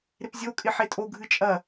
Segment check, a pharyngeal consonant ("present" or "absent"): present